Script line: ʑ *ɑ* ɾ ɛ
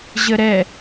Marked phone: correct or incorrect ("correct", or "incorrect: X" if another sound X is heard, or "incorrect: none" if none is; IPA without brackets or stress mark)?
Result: incorrect: ə